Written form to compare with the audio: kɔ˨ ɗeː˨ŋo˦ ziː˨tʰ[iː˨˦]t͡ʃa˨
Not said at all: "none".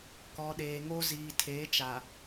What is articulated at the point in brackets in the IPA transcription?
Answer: eː˨˦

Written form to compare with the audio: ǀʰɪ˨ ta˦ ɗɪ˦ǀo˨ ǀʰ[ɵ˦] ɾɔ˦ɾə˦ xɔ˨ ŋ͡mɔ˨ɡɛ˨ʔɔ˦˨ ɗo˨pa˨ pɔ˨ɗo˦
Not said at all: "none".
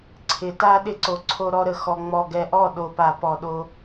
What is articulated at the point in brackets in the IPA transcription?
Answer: o˦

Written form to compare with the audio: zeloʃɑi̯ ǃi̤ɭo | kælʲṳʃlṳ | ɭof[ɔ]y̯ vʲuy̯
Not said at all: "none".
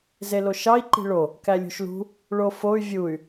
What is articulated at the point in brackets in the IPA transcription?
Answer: o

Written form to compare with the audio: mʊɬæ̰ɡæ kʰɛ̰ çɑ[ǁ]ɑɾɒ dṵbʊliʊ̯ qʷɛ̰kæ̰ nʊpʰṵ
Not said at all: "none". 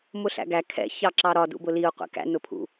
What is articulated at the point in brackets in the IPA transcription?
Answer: ǁ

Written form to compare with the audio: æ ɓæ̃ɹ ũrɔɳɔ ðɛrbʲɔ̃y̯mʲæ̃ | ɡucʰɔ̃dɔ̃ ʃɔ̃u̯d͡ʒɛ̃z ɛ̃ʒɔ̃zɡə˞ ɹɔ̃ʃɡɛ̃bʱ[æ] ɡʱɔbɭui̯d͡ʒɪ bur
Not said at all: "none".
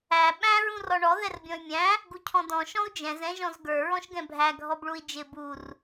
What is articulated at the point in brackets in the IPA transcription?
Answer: æ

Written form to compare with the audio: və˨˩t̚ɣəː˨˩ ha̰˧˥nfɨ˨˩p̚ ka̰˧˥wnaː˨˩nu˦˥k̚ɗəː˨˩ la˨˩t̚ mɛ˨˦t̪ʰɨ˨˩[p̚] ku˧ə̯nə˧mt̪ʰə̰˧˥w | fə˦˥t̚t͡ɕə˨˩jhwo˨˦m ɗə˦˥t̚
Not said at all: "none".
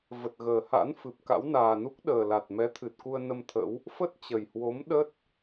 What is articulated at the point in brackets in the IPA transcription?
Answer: t̚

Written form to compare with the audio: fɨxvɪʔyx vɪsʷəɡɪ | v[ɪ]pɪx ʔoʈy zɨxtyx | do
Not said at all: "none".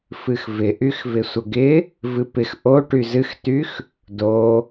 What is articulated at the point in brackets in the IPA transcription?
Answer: ɨ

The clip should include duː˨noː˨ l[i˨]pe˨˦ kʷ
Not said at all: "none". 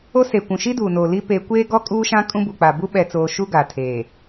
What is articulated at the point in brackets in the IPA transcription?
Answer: i˦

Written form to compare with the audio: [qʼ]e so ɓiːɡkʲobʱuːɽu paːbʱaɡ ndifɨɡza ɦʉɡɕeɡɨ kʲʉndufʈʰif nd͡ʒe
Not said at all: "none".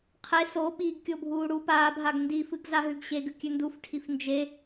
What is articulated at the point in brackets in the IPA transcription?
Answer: qʰ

